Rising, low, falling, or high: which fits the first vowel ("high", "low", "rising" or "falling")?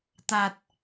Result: low